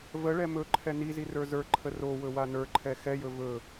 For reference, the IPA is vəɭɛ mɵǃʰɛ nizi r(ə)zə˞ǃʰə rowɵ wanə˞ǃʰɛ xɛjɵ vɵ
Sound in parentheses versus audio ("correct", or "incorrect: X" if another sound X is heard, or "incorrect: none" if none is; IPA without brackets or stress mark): incorrect: ə˞